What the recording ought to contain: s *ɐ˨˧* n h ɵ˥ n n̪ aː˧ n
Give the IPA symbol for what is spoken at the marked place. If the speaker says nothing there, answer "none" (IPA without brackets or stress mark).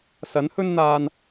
ɐ˨˥